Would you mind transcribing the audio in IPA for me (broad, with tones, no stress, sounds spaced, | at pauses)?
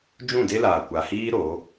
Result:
d͡ʒ ũ˦˨ d e˦ l aː˨ kʷ a˨ h iː˦ ɾ o˨˦